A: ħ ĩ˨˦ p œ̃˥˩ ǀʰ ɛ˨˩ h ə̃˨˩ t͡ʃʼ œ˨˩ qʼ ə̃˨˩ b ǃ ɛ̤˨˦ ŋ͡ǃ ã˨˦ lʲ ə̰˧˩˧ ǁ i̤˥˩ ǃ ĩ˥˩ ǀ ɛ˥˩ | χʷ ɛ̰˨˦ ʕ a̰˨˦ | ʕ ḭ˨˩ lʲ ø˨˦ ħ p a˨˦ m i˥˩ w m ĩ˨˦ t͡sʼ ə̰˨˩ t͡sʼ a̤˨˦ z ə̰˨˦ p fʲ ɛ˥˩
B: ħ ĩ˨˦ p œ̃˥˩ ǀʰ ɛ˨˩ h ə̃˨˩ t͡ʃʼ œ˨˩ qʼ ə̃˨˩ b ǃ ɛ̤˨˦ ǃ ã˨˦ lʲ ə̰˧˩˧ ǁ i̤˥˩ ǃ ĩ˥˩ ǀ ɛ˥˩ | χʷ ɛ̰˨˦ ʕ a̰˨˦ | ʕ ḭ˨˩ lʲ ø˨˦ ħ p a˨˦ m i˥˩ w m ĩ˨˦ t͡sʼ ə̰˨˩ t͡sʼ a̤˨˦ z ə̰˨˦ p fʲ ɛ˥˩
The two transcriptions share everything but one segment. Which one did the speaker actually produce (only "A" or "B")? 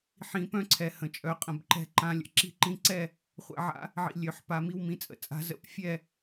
B